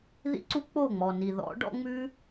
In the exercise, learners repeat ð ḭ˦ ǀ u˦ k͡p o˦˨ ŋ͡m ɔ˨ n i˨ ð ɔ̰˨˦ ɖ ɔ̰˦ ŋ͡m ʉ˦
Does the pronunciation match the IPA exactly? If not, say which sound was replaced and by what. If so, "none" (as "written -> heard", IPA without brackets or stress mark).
none